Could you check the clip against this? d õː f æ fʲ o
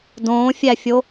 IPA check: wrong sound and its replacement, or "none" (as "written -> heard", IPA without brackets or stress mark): f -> fʲ